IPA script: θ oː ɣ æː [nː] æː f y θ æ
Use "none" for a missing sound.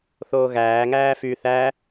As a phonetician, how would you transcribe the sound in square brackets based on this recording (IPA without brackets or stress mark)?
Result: ŋ